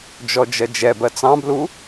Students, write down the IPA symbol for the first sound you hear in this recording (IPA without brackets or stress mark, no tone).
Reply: d͡ʒ